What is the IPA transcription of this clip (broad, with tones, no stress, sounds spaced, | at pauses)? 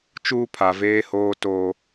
t͡ʃ uː˦ pʰ a˨ v eː˦ h oː˦ t o˦